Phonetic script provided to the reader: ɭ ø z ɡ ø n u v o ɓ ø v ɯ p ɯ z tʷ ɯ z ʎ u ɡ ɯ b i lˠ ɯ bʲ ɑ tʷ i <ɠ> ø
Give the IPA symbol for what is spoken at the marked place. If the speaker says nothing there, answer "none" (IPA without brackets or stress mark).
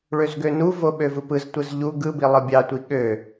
ɠ